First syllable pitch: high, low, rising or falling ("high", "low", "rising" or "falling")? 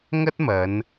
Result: high